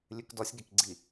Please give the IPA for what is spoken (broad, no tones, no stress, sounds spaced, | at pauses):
lʲ ʉ k d ɔ sʲ ɡ e k ɡ͡ǀ i